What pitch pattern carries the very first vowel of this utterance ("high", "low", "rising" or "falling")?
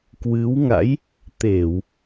rising